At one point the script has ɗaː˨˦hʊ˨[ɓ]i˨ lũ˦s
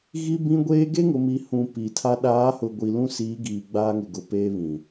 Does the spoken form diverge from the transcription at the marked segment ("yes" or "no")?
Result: yes